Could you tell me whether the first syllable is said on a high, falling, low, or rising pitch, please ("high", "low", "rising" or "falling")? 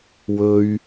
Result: low